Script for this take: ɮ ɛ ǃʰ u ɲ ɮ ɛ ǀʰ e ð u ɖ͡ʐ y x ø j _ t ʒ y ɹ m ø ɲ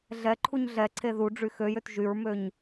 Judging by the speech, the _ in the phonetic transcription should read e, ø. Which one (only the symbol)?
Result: ø